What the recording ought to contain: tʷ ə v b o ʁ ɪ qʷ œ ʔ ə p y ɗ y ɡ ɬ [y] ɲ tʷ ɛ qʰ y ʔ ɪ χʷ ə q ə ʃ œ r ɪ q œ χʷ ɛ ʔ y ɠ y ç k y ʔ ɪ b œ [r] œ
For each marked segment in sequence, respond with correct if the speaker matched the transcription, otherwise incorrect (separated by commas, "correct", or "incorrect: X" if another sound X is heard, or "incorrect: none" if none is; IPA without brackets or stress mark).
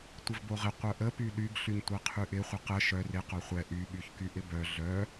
correct, incorrect: ɮ